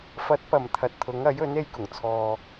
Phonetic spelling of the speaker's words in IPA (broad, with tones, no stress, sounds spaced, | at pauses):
f ɐ˨˥ t̚ p ɐ˨˩ m t̪ʰ ɐ˨ t̚ t̪ʰ ʊ˨˥ ŋ ɐ˨˥ j ɵ˨˥ n e˧ j k ʊ˨˩ ŋ t͡sʰ ɔː˨